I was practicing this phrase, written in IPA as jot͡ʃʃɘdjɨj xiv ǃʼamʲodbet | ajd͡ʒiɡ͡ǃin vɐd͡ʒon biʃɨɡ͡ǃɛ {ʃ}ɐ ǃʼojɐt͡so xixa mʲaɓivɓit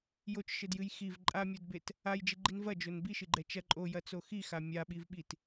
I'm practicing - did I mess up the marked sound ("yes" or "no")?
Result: yes